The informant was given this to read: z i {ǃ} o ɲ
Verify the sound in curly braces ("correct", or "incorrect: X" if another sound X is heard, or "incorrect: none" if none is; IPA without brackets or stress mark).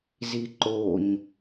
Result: correct